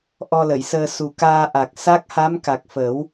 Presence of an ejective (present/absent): absent